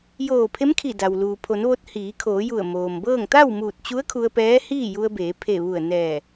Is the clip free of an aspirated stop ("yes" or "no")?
no